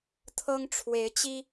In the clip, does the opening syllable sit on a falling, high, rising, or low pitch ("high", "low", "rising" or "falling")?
high